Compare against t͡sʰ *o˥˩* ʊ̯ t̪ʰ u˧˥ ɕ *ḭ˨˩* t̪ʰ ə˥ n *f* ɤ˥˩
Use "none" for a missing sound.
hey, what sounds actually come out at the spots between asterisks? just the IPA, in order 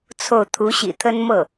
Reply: o˥˩, ḭ˨˩, m

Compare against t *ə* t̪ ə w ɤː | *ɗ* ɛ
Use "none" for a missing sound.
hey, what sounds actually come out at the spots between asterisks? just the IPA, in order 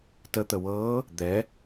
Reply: ə, d̪

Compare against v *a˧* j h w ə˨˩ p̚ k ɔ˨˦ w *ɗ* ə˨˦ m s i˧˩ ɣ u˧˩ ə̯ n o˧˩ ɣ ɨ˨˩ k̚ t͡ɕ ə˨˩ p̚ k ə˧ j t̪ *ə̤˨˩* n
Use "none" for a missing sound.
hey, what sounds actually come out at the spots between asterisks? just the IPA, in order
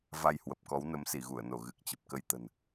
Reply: a˧, n, ə̤˨˩

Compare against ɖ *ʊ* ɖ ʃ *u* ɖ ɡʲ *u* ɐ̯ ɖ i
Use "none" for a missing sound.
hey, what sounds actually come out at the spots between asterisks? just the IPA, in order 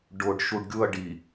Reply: ʊ, u, u

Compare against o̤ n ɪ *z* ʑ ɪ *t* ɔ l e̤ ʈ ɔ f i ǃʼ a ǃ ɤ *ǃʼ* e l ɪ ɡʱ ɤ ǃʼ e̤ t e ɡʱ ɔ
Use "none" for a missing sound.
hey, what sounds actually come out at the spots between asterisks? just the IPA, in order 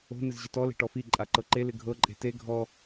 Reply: z, t, ǃ

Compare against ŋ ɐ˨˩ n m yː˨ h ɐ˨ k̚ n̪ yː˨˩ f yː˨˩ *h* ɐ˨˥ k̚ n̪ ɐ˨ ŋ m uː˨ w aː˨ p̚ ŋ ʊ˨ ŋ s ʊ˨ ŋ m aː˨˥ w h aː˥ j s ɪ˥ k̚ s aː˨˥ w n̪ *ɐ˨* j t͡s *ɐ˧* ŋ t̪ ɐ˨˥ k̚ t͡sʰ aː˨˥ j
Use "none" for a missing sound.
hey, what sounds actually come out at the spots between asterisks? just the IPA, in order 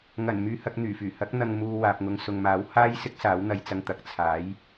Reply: h, ɐ˧, ɐ˧

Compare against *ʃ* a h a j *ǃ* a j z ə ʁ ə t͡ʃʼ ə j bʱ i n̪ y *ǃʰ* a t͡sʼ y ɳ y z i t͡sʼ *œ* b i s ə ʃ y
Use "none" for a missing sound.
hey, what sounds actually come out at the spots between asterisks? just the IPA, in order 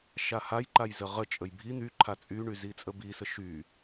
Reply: ʃ, ǃ, ǃʰ, ə

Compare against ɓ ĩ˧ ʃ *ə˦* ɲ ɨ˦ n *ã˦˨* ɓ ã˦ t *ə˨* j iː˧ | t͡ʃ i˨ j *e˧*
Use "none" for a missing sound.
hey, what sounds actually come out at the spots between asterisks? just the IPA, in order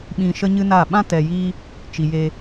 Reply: ə˦, a˦˨, ɛ˨, e˧

